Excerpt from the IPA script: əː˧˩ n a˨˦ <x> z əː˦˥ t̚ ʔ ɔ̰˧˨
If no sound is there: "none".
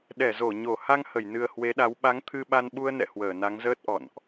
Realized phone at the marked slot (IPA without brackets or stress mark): ŋ